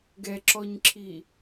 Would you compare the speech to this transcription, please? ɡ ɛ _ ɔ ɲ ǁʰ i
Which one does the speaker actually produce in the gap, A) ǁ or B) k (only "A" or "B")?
A